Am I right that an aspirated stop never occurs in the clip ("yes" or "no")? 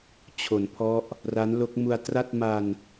no